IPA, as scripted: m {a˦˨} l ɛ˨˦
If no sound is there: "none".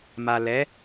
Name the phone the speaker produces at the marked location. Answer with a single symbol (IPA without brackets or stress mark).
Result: a˨